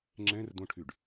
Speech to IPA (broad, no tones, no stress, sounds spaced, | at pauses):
ŋ͡ǁ ɛ̃ r d õ ʈʰ y ɖ